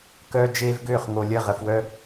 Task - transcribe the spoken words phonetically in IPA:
k œː˦ d͡ʒ eː˦ v ɡ øː˦˨ χ ŋ o˨ lʲ ə˦˨ ʁ ə˨ f w œ˦

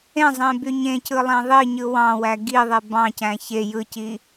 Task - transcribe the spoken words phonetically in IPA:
ẽ zˤ ẽ b y ɲ ẽ c ɯ lˠ æ̃ ðˤ i ɲ ɯ w ɑ̃ w æ ɡ i ðˤ e b ɑ̃ c æ̃ ç e j ɯ c i

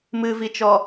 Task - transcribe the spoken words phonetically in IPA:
m ɨ v i t͡ʃ ɔ

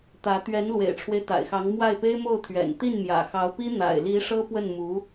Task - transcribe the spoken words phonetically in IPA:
t̪ ä˧˥ t̪ ɥ ɛ˧˥ n l w ḛ˨˩ ɪ̯ ʈ͡ʂʰ w e˦ ɪ̯ t̪ a̰˨˩ ɪ̯ x ɑ˧˥ ŋ m w a˥˩ ɪ̯ p e˥ ɪ̯ m o˥˩ ʊ̯ t̪ʰ ɥ ɛ̰˨˩ n t̪ i˥˩ n m j ä̰˨˩ x ɑ˧˥ ʊ̯ p i˥ n̪ a̰˨˩ ɪ̯ l i˧˥ ʂ ɤ˥ p w ə˥˩ n m u˧˥

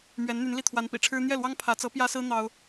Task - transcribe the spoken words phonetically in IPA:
m ɥ ɛ˧˥ n n̪ y˧˥ n l i˥˩ t̪ʰ w a˧˥ n p ḭ˨˩ ʈ͡ʂʰ ɻ̩˥ n̪ j ɛ˥˩ l w ɑ˥ ŋ pʰ ä˧˥ t͡s ɤ˧˥ p j ä˥ s ɹ̩˥ n̪ ɑ˥ ʊ̯

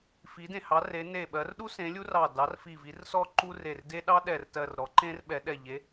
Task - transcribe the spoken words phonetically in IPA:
f i˨˥ d ẽ˧˩ h ɑ˨˥ r e˨˥ n e˧˩ ɓ ɜ˨˥ r ɗ u˥ s ẽ˨˥ lʲ u˥ r ɑ˧˩ d ɑ˨˥ r f i˧˩ v i˨˥ r s ɔ˥ ǃ u˥ r e˧˩ r d e˥ ɗ ɑ˥ ɗ ɛ˧˩ r t ɜ˧˩ r ɾ ɔ˨˥ ǃ ẽ˥ r ɓ ɛ˨˥ ɗ ɛ˧˩ ʎ e˨˥

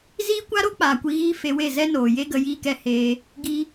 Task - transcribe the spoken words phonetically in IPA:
z iː˦ kʷ a˦ ɾ o˦ k͡p aː˨ kʷ i˧ ɣ iː˦ f e˧ w e˦˨ z ɛ˦ n oː˨ j e˦ ɡ ə˧ j iː˦ k ɛ˧ h eː˧ | ɡ i˧

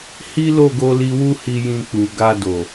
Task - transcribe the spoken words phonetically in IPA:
h i˦ l o˦˨ ɡ o˧ l i˧ w u˦ h i˧ j ĩ˧ k͡p u˨ ɡ a˧ d o˨

